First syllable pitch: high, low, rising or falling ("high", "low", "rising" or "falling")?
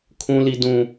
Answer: high